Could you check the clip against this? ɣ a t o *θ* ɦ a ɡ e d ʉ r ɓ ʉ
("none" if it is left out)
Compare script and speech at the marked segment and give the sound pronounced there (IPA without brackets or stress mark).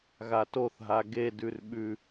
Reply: θ